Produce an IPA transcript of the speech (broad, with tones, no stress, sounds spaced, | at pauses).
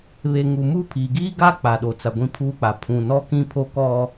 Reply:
β e˨ ŋ u˨ m u˦ pʰ iː˨ ɡ iː˦ ɡ aː˦ k͡p a˨ ɗ o˨ t͡s a˨ ɡʷ ĩ˦ pʰ uː˦ k͡p a˨ pʰ ũ˨ n ɔ˦ k ĩ˦ pʰ o˦ k ɔ˦